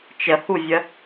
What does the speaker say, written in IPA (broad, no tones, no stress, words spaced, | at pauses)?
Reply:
t͡ʃəhuvʲə